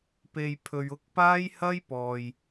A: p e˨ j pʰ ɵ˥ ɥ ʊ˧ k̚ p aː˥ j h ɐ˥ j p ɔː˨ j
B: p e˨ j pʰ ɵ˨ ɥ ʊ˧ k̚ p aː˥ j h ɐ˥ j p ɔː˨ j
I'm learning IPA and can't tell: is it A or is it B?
B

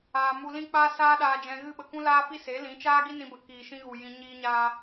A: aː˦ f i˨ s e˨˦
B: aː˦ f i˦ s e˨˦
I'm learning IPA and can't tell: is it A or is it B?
B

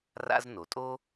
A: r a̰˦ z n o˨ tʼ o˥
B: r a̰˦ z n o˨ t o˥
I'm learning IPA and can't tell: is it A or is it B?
A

